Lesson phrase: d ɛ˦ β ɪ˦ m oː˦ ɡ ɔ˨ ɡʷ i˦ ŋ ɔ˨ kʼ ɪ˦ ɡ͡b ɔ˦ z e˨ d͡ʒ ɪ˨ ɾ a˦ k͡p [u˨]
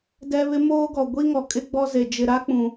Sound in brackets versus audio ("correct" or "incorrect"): incorrect